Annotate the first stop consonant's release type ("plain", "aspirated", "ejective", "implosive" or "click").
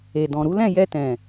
plain